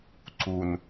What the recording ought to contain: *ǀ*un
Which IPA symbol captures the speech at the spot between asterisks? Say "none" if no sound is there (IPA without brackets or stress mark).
ǀ